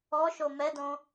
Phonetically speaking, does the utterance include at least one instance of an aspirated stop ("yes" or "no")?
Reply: no